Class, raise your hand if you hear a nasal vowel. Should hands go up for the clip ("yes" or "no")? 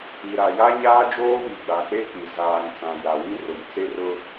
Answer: yes